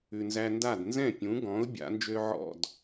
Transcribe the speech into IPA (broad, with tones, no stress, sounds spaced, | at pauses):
ʉ˩ n z æ˧ n d a˥˩ d n z ɛ̃˥˩ pʲ ũ˩˥ ɡ ɔ̃˩˥ ʊ̯ bʲ a̰˩˥ n d͡ʒ ø˥ ʕ ɔ̰˥˩ d